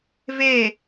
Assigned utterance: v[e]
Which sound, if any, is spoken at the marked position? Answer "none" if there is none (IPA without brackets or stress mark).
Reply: e